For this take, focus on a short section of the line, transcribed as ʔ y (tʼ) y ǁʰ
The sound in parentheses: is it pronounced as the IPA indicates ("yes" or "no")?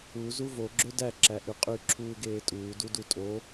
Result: no